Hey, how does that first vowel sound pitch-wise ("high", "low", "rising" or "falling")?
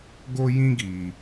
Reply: high